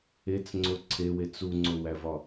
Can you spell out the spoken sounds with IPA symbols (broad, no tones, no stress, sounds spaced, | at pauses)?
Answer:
e t͡s ŋ͡ǀ o ǀʰ e w e t͡s u ŋ͡ǀ o w æ v ɒ